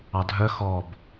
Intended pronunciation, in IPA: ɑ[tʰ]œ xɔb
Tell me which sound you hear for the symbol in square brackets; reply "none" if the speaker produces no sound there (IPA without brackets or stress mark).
dʱ